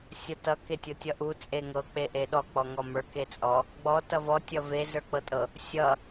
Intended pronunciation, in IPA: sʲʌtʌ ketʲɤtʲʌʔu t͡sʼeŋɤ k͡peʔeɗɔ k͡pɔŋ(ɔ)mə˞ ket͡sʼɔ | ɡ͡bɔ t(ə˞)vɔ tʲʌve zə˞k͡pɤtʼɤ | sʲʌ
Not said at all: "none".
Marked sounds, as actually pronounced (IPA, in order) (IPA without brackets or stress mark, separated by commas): ɔ, ʌ